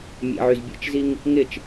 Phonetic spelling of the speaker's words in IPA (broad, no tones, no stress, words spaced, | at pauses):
mʲḛʕyz bʲḛt͡ʃziŋ | ŋɪt͡ʃ